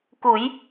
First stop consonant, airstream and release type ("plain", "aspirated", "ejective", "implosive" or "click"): plain